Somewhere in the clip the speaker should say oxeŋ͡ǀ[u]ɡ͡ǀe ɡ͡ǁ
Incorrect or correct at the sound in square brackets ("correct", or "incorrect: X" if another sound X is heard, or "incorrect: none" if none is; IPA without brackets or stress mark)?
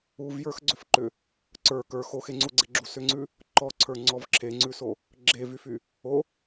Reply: correct